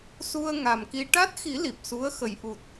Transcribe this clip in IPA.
s u˧ ə̯ ŋ a˨˩ m k i˧ ʈ a˦˥ t̚ x i˨˩˦ l i˨˩ p̚ s u˧˥ ə̯ x ə˨˩˦ j ʔ u˨˩ t̚

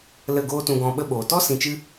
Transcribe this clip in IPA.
l ə˦˨ ɡ oː˦ t ũ˧ ɡ ɔ̃˧ ɓ ə˦ ɓ oː˨ t ɔ˦ s ĩ˧ t͡ʃ ɨ˦

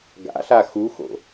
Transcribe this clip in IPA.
ɡ a̰ ɬ a x u x o̰

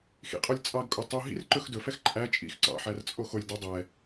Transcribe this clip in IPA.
x ḭ qʼ o lʲ t͡sʼ ɑ ɡ kʼ o tˤ u ɦ ḭ r ǃ ɵ x d ɵ f ɛ x ǃʼ æ t͡ʃʼ ḭ x ǀ ɑ̰ ħ æ r t͡sʼ o x o lʲ d o dˤ ɛ

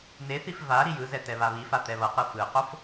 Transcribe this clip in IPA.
n e θ i f v a ɾ i j ɯ z ɛ t ɛ β a β i f a t̪ ɛ β ʌ q ɯ f ɯ q o f

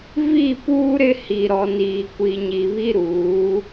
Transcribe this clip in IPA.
v i˦˨ p uː˦ ɾ ɪ˦ h i˨ ɾ ɔ˨ n iː˨ kʷ i˨ ɲ i˨ β i˦ ɾ uː˨˦

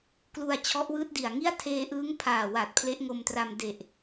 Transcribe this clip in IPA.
k l u˧ a̯ t͡ɕʰ ɔ˦˥ ʔ w ɯː˦˥ t̚ d i˨˩ a̯ ŋ i˥˩ a̯ tʰ eː˧ ʔ ɯː˦˥ ŋ pʰ aː˨˩ w a˨˩ t̚ pʰ l e˦˥ ʔ ŋ o˧ m t r a˧ m d e˨˩ ʔ

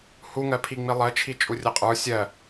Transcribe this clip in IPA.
h u ŋ ɜ pʰ i ŋ͡m i lˠ ɜ t͡ʃʰ i t͡ʃʼ u rʲ ɐ qʼ ə˞ sʲ ɜ

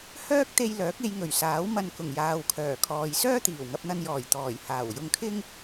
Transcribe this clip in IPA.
h œː˥ k̚ t̪ e˧ j l œː˨˥ k̚ e˨˧ j ŋ ɵ˨˩ ɥ s aː˨˥ w m ɐ˧ n k ʊ˨˩ ŋ j aː˨ w kʰ œː˨˩ kʰ ɔː˨ j s œː˥ t̪ iː˨˩ w ŋ ɐ˧ p̚ n̪ ɐ˧ n j ɔː˨˩ j t̪ ɔː˨˩ j h aː˨˩ w j ʊ˧ ŋ kʰ ɪ˥ ŋ

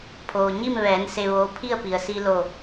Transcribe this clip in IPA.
pʰ oː˩ ɲ i˥˨ m ʋ ɛː˩˧ n s e˧ ʋ oː˧˥ pʰ i˥˨ ə̯ p i˩ ə̯ s i˧ l o˧˩

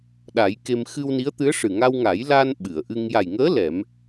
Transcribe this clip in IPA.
ɗ a˨˩˦ j k e˧ m x ɨ˧ w n i˧˥ ə̯ t̪ ɨ˧˥ ə̯ ʂ ɨ˨˩ ŋ a˧ w ŋ a˨˩˦ j l a˧ n ɓ ɨ˨˩˨ ə̯ ʔ ɨ˧ ŋ j a˨˩ j ŋ əː˧˥ l ɛ˨˩˦ m

